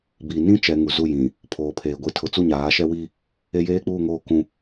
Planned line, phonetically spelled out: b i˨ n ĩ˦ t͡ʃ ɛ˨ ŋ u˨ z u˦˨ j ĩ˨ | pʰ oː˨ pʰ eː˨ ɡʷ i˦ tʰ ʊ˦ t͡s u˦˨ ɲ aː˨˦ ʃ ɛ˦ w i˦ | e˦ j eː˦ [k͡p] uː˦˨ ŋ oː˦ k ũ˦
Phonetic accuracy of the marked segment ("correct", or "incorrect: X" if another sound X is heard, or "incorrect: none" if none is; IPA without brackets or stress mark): correct